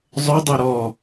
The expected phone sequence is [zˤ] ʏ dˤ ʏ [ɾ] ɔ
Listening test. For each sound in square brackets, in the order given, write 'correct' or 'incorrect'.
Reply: correct, correct

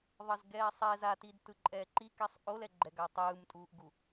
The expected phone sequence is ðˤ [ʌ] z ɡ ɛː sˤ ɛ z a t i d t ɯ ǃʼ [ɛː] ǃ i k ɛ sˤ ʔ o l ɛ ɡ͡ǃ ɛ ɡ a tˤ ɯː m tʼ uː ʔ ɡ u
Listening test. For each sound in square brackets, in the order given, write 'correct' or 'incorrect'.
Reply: correct, correct

